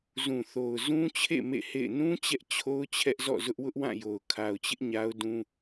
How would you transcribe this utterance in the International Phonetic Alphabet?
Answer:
zũ˨θo˨ʊ̯ zũ˦t͡ɕʰḛ˦˨ mḛ˦˨hḛ˦˨ɪ̯ nũ˦ t͡ɕɛ˦ʔt͡ɕʰo˦ʊ̯ t͡ɕʰɛ˦ʔzɔ̰˦˨ zʊ˦ʔwʊ˦ʔwã˦˨ jo˨ʊ̯kʰa˨ʊ̯t͡ɕɪ˦ʔ ɲa˦ʊ̯dũ˦

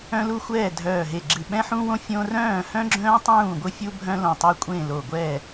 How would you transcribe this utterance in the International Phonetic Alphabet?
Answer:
œ̃˥lu˥ xʷɛː˥˨dʱœː˧˩ɦe˧˩ɡ͡ǁɨ˧˩ ɓɛ̃˥ħũ˥wõ˥ fʲõ˥ rœ̃ː˥˨ hœ̃˥ɡ͡ǁœ̃ː˥tˤũː˥˨ ɡʷɨ˥fʲu˥bʱœ̃˥ lõ˧˩tˤœ˥kʷʼẽ˥˨lo˧˩ ɡʷɛː˥˨

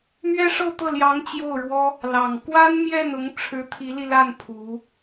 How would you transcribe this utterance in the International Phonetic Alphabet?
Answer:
mɥɛ˥ʂɤ˥˧t̪ɤ˥˩ljɑ˧˥ŋ t͡ɕjo˥˩ʊ̯ɻwɔ˥ | lɑ˨˩ŋkwa˥n mjɛ˥˩nʊ˧˥ŋ ʈ͡ʂʰɻ̩˧˥t̪ʰi˧˥li˧la˥˩n pʰu˧˥

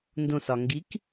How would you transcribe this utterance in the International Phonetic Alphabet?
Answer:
ndõsɒŋɡik

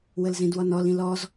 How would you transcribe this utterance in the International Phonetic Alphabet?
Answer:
wəlzĩdwɔnɔl ĩlɔz

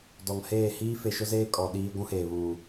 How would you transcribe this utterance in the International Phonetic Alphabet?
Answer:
dɔ˨ŋheː˦˨ hiː˦fe˨ʃʊ˦zeː˦ kʼɔ˨ ɗiː˦ ɡʷũ˦heː˨βuː˨

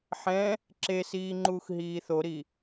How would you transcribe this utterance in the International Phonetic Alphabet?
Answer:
ħɛ̃ | ǁesiː ŋ͡ǃuːxɦiːθoɾi

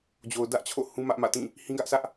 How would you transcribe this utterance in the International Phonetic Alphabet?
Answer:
d͡ʑo˨ʊ̯dä˦ʔt͡ɕʰo̰˦˨ hũ˦mä˦ʔmä̰˦˨tĩ˦˨ | hĩ˦ɡä˦ʔsʰä˦ʔ

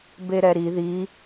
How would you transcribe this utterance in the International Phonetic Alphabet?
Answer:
beɾɛɾi ði

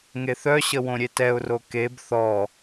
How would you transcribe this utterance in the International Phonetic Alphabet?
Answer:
ŋeθœɕə wõɾʲetɛʊ̯ro keb θɔ

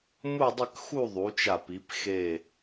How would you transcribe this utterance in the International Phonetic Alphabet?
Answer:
mu˥˧dˤə˥˧k xu˥˧ ðˤu˩˧t͡ʃa˧˩pi˩˧p xe˧˩

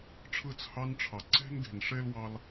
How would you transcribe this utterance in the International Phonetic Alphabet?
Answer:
ʈ͡ʂʰɯ˦˨t͡shɑ˦nʈ͡ʂʰɑ˨ ǀe̤˧n ɡe̤˨nʂe˧lwɑ˧l

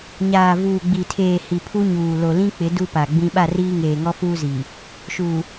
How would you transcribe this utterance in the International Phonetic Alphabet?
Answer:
ɲaː˨vuː˨ɡ͡bi˨tʰeː˨ hi˨pʰu˦ɲuː˨ lo˨lĩ˦k͡pɪ˨˦ du˦pa˨ɡ͡bĩ˦ ɓa˦˨riː˦ ŋeː˨ŋɔ˦fuː˦zi˨ | ʃu˨

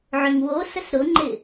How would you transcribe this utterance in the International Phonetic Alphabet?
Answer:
ʕʏŋwosəs ɾʊŋ͡ǃɪ

